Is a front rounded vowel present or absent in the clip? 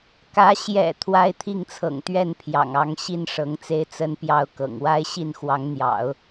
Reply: absent